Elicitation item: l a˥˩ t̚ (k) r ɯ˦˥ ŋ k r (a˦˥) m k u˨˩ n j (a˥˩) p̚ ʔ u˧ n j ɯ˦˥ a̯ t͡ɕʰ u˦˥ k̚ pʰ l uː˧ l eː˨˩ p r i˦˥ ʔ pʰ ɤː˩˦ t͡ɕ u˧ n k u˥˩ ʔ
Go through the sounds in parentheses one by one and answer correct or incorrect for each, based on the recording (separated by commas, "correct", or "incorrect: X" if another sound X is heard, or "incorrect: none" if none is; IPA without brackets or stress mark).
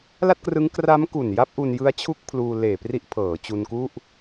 correct, correct, incorrect: a˦˥